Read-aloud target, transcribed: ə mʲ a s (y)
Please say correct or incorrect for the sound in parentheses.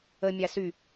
correct